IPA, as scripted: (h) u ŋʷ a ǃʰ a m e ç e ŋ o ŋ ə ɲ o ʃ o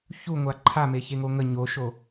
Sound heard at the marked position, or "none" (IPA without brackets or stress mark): ç